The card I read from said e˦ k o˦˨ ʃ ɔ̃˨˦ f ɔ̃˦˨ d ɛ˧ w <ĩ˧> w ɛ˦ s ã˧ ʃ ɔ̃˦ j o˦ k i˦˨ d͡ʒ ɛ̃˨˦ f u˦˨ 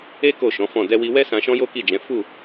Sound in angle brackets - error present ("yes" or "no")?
yes